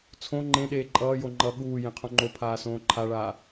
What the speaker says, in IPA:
t͡sʰ õ ŋ͡ǃ ẽ ɗ eː ǃʼ ʌː j o ŋ͡ǃ ʌ ɠ uː j ẽ qʰ õ ŋ͡ǃ o pʰ aː s õː ǃʰ a ɭ aː

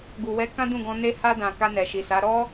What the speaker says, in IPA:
ɡ u˨ w ɛ˨˦ k ã˦ d ũ˦˨ ɡ ɔ̃˧ n e˦ h a˧ d ã˨ k a˧ n ɛ˨ ʃ i˨ s a˨˦ ɾ ɔ˦

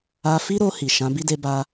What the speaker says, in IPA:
a˧ f i˦ ɾ o˧ h i˨ ʃ ã˨˦ b i˦ d e˧ b a˧

